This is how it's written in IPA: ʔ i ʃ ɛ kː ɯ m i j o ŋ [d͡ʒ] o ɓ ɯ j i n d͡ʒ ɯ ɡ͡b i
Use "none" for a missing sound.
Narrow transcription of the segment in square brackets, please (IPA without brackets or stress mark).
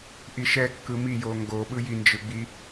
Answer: ɡ